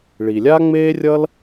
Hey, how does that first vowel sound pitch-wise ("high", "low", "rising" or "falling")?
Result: low